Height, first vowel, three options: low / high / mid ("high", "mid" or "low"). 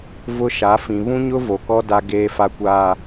high